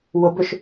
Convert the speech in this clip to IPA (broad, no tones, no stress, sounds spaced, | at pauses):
w ʊ b ʏ ʃ